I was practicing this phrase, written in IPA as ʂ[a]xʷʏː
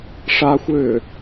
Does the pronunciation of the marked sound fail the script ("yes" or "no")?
no